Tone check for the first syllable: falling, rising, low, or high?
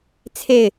falling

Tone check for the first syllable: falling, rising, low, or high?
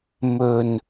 low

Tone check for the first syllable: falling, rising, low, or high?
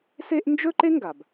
high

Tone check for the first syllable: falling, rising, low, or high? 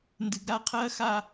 low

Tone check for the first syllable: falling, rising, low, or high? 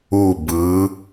falling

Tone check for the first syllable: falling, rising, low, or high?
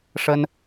high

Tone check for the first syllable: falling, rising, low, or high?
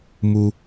low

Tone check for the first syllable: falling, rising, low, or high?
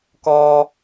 high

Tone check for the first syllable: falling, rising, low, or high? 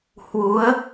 rising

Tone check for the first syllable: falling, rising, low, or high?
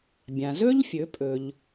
low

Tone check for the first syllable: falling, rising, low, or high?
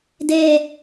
high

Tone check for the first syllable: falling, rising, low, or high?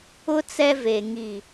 high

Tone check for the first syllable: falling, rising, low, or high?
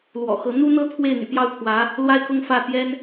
low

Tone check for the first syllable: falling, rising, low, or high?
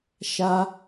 high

